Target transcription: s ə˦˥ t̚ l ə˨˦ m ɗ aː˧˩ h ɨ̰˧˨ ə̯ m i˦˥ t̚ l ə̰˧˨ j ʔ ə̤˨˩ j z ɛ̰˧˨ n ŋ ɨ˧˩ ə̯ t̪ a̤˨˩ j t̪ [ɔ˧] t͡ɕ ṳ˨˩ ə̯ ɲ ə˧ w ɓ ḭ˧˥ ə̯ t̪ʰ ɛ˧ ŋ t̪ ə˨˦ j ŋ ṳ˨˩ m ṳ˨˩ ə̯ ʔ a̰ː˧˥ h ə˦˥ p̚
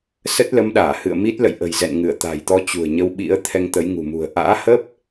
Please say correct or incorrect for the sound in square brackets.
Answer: correct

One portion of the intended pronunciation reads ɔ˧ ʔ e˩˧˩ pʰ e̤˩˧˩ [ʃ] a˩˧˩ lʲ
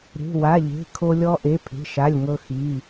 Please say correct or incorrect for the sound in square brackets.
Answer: correct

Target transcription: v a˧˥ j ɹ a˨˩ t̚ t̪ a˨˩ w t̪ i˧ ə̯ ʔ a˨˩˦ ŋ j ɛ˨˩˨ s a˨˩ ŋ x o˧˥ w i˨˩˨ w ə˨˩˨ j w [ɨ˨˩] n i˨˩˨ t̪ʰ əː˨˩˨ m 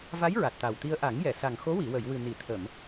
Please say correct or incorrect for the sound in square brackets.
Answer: correct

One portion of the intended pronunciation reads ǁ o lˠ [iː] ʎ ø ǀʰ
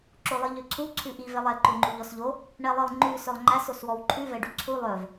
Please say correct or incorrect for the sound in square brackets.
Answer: incorrect: i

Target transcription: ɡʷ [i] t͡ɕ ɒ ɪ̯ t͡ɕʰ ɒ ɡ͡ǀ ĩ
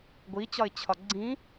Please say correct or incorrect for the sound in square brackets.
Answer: correct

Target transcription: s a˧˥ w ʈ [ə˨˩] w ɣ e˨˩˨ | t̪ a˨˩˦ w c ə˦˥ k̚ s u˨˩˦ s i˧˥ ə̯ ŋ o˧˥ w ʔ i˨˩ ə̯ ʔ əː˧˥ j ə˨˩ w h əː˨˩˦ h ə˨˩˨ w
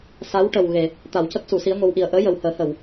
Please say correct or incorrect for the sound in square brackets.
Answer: correct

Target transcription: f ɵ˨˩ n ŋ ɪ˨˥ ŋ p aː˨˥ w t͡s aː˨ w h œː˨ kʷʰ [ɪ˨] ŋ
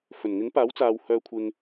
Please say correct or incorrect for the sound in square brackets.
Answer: correct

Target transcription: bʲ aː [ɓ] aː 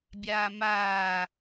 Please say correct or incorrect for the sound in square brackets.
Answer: incorrect: m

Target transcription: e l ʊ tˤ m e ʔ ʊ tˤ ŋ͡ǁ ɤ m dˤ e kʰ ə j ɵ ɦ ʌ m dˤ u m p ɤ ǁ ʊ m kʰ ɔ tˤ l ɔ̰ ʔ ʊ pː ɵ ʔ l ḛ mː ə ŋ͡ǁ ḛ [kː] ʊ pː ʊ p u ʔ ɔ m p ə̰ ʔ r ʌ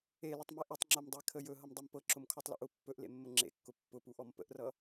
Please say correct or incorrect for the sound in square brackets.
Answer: correct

